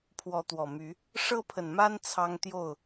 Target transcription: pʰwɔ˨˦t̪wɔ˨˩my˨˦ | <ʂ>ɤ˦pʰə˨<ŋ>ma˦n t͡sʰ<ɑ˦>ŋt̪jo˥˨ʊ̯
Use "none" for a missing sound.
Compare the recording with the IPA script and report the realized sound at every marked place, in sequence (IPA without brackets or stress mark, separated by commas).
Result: ʂ, n, ɑ˦